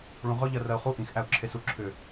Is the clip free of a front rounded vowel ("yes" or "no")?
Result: no